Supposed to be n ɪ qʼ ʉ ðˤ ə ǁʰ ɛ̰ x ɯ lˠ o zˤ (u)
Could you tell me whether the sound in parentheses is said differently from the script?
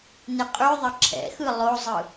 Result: yes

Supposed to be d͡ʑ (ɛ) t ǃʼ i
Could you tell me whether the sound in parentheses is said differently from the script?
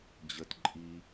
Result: yes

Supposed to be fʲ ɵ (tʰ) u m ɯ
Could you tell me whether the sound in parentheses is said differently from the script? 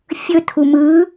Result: no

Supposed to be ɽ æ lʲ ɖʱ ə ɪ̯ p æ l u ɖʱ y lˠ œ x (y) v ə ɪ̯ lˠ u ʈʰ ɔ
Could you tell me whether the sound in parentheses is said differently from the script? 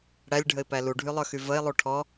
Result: no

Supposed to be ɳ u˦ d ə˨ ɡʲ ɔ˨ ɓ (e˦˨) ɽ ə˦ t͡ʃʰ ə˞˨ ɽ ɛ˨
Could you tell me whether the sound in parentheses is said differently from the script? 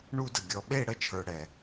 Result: no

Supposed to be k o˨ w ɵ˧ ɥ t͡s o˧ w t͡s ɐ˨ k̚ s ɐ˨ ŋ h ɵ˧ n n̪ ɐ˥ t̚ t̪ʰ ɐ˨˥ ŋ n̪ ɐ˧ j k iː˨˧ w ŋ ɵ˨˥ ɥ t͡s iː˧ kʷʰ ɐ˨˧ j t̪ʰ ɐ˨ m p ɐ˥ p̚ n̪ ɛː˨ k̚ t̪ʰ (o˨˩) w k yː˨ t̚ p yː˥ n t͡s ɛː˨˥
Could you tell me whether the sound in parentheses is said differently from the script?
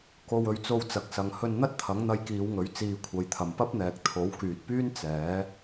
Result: yes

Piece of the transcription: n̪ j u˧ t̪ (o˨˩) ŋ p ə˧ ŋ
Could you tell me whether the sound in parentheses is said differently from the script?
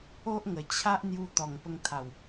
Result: yes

